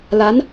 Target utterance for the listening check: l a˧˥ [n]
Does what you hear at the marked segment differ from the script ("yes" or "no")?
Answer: no